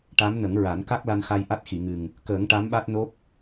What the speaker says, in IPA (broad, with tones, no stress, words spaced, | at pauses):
ʈa˧˥mnə˨˩˦ŋɹa˨˩˦n ka˦˥k̚la˧nxa˧j ʔa˦˥t̚xi˨˩˨ŋɨ˨˩ŋ | kəː˨˩˦ŋ ʈa˧˥mɓa˦˥t̚no˦˥p̚